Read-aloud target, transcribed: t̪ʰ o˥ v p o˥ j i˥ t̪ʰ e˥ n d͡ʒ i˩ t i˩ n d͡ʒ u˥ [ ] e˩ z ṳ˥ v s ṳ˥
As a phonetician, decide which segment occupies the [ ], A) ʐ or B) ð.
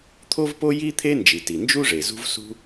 A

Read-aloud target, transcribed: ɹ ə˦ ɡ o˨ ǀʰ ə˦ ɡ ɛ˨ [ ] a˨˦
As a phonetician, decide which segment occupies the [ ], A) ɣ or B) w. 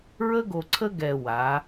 B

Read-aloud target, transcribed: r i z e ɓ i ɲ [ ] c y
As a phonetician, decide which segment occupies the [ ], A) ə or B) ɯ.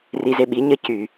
A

